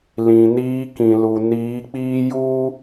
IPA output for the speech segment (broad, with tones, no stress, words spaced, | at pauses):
lĩ˨niː˦ kĩ˨lu˨ niː˨˦k͡piː˦juː˦